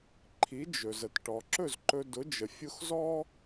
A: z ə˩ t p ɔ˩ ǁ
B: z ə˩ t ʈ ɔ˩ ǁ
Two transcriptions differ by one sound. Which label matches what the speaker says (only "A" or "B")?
B